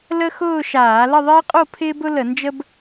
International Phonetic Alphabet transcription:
l ə˥ x ʊː˥˧ ʃ aː˧˩˧ l ə˥˧ ðˤ ɪː˥ qʼ o˥˧ pʰ ɪː˥ b ʊ˥ l ə˧˩˧ n d͡ʒ ə˥ b

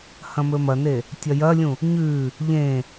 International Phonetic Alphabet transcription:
h ɐ̃ m ɵ m ɐ n e | tʲ ɐ j ɐ lʲ ũ | ɲ ʉ | ʎ ẽ

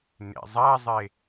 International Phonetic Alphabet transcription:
n ḛ zˤ a zˤ e

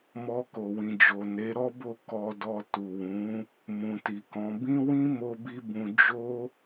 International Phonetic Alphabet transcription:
m ɔ˧ k o˨ w ĩ˨ d͡ʒ o˨ n e˨˦ ɾ ɔ˦ b o˦˨ k ɔ˧ d ɔ˧ t u˨ w ũ˨˦ | m ũ˨ t i˨ k ɔ̃˨˦ b ĩ˦ w ĩ˦ m o˧ b i˧ b ũ˧ d͡ʒ o˧

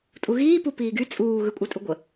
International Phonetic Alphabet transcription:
tʼ u ɣ iː p u p iː ɡ y t͡sʼ uː ɣ ɯ kʷʼ a tʼ u ɡʷ ə

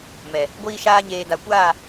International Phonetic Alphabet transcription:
m ɛ˨ | ɡʷ iː˧ ʃ aː˧ ɲ eː˨ d a˨ kʷ aː˦˨

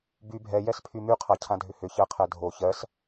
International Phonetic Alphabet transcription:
b y bʱ ɛ j ɛ s pʰ y m y qʰ a cʰ ã dʱ ʏ h ʏ ç ɜ qʰ ɛ dʱ o ç ɜ s

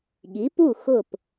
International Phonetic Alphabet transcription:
ɠ i˩˥ p u˥˩ x ʊ˥˩ p

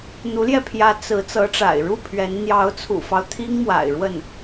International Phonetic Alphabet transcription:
n̪ u˧˥ l j ɛ˧ pʰ j ä˧˥ t͡s ɹ̩˧˥ t͡s ɤ˧˥ ʈ͡ʂ a̰˨˩ ɪ̯ ɻ u˥˩ pʰ ɥ ɛ˧˥ n n̪ j ɑ˧˥ ʊ̯ t͡sʰ ṵ˨˩ f ɑ˦ ʊ̯ t̪ʰ i˥ ŋ m w a̰˨˩ ɪ̯ ɻ w ə˥˩ n

